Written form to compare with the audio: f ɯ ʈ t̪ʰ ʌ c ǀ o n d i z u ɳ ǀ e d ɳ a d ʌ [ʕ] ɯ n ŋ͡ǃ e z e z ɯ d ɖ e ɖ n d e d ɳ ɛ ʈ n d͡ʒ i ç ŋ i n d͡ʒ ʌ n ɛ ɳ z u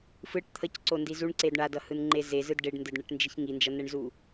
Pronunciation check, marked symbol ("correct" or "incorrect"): incorrect